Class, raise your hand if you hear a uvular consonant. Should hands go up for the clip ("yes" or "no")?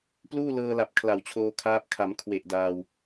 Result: no